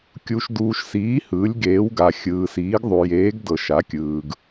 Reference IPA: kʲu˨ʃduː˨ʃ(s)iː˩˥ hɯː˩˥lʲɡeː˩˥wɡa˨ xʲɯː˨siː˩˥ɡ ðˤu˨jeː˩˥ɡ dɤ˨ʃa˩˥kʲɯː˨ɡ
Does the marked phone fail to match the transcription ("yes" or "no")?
no